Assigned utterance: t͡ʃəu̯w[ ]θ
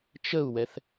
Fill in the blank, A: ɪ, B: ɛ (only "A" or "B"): B